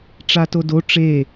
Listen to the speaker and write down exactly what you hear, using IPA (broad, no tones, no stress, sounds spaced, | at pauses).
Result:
ʈ͡ʂ a t o d o ʈ͡ʂ e